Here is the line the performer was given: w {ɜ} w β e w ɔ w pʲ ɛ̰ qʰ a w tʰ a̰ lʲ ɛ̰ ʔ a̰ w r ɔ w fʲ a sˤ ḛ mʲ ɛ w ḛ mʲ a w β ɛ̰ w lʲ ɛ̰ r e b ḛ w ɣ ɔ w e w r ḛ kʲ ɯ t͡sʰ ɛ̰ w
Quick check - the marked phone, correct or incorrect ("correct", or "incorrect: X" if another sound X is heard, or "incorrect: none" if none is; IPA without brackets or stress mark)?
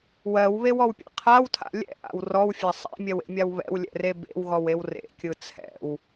correct